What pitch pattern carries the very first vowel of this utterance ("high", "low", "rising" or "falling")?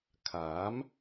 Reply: rising